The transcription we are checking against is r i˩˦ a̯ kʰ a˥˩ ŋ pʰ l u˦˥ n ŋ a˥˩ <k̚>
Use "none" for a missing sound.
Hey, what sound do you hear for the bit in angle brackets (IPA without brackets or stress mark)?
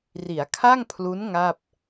p̚